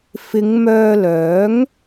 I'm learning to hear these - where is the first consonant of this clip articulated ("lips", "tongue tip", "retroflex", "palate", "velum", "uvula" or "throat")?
lips